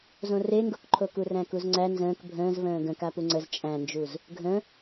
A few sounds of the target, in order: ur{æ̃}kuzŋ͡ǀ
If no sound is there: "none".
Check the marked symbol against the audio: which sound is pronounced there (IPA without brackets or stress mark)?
æ̃